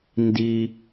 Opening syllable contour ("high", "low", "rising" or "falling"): low